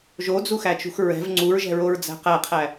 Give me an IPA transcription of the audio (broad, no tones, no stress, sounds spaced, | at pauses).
ʒ o d͡z u x æ t͡ʃ ṳ x ɹ ɛ̤ v ŋ͡ǀ u ɹ ʒ ɛ̤ ɹ o ɹ d͡z æ̤ q æ qʰ æ